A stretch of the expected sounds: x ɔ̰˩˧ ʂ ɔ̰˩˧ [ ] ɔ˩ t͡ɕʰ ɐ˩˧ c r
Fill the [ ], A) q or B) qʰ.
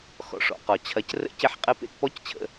A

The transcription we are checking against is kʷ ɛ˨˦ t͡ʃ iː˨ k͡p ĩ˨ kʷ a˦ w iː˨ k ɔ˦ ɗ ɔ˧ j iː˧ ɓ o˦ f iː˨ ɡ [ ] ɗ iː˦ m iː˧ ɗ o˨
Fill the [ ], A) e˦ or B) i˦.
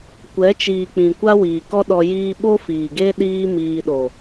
A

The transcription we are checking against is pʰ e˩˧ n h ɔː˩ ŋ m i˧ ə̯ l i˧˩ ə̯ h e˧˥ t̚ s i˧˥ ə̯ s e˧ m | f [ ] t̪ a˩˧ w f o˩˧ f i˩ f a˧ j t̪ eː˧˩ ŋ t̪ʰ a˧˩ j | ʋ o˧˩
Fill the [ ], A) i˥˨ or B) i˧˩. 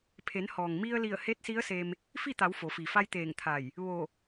A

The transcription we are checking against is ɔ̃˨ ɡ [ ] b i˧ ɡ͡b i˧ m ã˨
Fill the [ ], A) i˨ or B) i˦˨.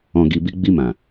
A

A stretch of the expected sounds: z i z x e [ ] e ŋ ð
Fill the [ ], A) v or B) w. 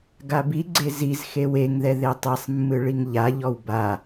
B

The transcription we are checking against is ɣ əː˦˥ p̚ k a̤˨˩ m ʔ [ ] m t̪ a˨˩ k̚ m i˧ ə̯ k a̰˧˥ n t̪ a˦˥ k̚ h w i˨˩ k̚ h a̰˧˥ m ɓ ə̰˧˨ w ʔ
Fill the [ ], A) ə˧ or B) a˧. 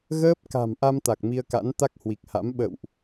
B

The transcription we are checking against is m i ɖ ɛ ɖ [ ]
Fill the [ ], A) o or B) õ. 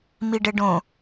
B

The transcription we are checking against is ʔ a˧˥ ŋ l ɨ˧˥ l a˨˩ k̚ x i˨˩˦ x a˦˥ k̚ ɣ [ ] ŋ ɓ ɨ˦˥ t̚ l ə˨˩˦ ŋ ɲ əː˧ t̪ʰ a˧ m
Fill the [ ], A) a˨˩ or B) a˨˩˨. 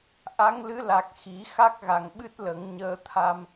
A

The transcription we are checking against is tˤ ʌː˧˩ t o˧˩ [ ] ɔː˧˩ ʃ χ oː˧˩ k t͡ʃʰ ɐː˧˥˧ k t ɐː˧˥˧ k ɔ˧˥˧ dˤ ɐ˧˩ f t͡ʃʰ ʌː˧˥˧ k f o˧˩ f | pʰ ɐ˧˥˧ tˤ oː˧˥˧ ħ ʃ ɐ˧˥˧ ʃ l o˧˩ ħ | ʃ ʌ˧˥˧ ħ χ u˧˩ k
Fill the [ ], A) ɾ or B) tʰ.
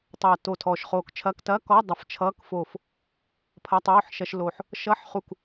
B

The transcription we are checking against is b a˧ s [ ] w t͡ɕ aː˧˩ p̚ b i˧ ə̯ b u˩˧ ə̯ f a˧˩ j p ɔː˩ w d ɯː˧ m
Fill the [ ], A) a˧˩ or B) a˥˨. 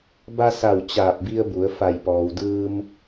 A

